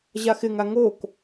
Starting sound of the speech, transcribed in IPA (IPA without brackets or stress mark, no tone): ʑ